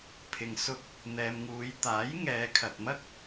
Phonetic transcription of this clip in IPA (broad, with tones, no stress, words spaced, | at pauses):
pʰɪ˨ŋ sʊ˧k̚ | n̪ɛː˨mŋuː˨˧j t̪aː˨˥j ŋɛː˨˧ kʰɐ˨t̚mɐ˥k̚